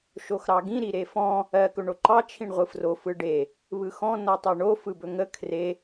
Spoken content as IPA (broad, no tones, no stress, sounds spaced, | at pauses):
ʃ o x ɾ ɑ ɡ ĩ ɾ i ɾ e f ɔ̃ | ɜ k ɵ ɳ o ǃ ɑ t͡ʃʰ ĩ ɳ ʁʷ ɯ f r o f ɯ ɖ e | β ɯ x ɔ̃ n ɔ tˤ ɜ ɳ o f ɯ b ɵ ŋ ə kʰ r e